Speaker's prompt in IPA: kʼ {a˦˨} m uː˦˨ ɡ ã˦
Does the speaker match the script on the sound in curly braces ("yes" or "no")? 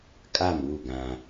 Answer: yes